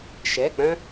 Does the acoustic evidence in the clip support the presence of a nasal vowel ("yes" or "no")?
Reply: yes